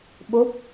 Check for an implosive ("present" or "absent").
present